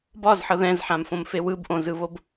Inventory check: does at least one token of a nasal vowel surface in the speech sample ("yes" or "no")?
yes